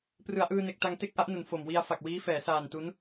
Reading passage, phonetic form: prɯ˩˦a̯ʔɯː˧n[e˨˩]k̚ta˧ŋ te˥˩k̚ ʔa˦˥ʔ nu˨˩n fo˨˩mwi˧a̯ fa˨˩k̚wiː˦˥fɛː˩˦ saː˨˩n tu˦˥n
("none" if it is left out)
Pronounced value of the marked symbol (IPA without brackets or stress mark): e˨˩